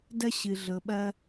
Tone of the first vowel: high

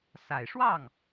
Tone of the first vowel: low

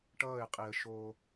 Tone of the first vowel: falling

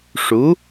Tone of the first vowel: rising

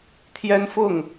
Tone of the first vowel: high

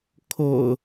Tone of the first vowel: low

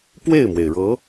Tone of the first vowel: falling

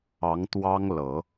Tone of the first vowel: rising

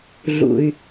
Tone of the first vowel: low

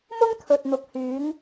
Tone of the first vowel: high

